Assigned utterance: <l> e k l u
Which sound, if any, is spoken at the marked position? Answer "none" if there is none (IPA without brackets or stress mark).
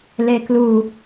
l